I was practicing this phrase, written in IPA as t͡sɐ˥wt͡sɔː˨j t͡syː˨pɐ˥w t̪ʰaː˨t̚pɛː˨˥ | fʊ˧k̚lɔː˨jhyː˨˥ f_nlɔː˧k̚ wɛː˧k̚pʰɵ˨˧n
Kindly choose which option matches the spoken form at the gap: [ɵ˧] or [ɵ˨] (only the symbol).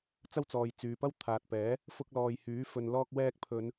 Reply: ɵ˨